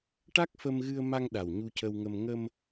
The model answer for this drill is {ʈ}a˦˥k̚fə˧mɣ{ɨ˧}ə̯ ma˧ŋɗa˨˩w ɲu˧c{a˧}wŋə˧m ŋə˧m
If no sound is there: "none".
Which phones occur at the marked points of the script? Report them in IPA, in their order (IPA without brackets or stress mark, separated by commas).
ʈ, ɨ˧, ə˧